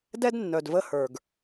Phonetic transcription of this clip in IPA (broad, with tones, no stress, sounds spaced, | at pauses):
d ɛ˦ d nː œ˨ d v ə˧ h ə˞˨ ɡ